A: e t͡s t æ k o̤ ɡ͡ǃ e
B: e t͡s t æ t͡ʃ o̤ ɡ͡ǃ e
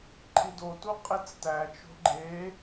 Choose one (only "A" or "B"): B